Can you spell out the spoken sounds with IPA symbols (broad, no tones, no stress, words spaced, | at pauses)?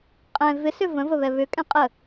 qʼɛ̃ vɪsʏ və̃vəβɛ βʏkʼɛ̃ qʼə